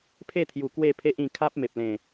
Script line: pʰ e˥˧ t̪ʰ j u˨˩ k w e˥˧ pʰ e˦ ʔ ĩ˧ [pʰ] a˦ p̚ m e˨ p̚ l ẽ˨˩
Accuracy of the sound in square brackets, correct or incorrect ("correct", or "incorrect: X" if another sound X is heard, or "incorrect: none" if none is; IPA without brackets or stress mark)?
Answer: incorrect: kʰ